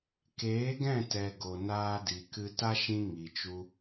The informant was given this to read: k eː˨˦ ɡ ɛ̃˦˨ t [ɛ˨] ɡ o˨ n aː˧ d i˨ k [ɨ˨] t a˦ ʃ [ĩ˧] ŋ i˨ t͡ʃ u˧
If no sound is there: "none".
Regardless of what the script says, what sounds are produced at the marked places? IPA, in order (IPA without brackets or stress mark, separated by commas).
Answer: ɛ˨, ɨ˧, ĩ˧